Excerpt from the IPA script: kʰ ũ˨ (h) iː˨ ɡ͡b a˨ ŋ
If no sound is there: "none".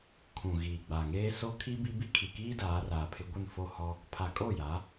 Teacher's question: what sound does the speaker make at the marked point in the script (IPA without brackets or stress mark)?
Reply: ɣ